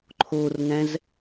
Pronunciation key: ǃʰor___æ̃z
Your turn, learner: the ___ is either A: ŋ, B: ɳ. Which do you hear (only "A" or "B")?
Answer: A